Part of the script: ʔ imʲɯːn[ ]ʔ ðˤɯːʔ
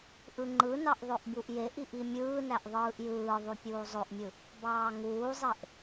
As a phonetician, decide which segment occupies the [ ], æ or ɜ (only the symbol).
æ